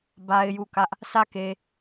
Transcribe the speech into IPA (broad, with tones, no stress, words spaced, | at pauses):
ba˦ɪ̯ju˦˨kä˦ʔ | sʰä˦˨ke˨